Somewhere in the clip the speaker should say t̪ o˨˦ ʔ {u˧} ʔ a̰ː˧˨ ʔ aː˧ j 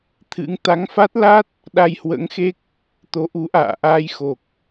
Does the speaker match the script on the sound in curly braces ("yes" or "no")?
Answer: no